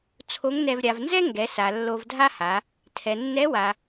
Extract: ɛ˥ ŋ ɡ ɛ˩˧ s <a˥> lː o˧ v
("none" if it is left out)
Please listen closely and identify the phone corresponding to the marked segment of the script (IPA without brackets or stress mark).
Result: a˩